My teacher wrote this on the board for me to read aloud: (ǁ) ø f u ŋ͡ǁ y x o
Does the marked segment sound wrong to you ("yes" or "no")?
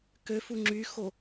yes